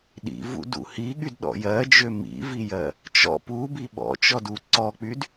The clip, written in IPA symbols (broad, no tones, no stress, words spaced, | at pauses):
ɗḭvṵdṵ hiɠydɗɔ̰ jɜd͡ʒø mḭvijɜ | t͡ʃɔ̰ pubi ɓɔ̰t͡ʃɔdu ǀɔk͡pyd